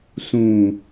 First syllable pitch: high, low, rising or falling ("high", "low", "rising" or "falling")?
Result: low